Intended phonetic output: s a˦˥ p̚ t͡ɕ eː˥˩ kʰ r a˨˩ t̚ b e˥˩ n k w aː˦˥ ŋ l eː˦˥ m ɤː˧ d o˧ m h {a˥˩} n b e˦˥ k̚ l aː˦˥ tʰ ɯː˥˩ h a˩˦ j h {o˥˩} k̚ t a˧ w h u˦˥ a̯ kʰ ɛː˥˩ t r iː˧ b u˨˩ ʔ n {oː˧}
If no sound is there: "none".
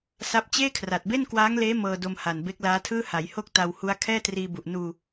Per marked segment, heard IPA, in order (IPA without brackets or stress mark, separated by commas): a˨˩, o˥˩, uː˧